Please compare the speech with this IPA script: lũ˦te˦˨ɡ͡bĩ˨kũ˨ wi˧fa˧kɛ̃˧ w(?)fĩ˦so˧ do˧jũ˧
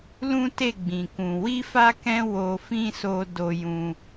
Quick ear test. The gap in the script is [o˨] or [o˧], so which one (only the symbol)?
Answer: o˧